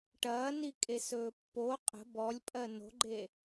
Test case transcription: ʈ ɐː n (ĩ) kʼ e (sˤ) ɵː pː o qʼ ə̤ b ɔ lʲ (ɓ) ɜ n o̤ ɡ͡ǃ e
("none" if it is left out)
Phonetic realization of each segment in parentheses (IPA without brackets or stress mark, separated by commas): i, s, pʼ